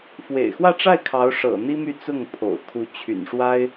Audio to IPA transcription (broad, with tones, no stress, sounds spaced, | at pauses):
f w ḛ˨˩ ɪ̯ x w ä˥˧ ʈ͡ʂ a˥˩ ɪ̯ kʰ ɑ˧˥ ʊ̯ ʂ ɤ̰˨˩ n̪ i˥ m y˥˧ t͡s ʊ˥˩ ŋ pʰ o̰˨˩ ʊ̯ kʰ u˧˥ t͡ɕʰ y̰˨˩ n ʂ w a˥ ɪ̯